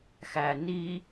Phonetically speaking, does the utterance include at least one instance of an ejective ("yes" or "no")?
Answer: no